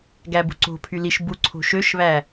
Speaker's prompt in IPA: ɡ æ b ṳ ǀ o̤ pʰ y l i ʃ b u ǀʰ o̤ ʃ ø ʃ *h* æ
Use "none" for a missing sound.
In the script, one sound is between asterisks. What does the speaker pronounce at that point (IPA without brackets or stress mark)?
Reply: β